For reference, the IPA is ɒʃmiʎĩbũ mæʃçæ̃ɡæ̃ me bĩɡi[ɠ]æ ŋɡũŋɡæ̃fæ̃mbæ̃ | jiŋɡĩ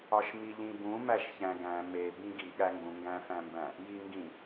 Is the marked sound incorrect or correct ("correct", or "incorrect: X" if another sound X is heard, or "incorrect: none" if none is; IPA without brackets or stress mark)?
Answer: correct